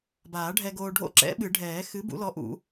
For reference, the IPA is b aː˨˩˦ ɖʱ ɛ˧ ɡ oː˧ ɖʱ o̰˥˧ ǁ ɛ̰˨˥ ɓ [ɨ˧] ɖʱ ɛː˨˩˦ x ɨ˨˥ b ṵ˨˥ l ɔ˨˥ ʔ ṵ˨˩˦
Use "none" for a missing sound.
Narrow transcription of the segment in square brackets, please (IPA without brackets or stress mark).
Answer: ɨ˨˩˦